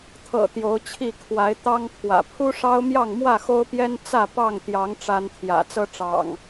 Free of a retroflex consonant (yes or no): no